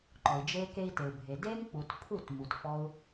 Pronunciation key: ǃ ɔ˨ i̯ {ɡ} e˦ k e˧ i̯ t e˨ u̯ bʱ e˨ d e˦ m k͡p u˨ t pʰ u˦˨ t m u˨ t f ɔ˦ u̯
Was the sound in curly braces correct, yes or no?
no